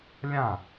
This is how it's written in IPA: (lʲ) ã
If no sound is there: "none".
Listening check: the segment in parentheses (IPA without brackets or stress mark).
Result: lʲ